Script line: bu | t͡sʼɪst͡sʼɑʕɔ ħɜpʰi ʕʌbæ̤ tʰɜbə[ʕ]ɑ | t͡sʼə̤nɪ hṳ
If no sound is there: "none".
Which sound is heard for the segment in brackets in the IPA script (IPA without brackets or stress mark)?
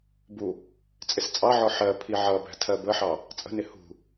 ħ